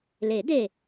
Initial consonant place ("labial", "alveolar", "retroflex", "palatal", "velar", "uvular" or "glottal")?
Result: alveolar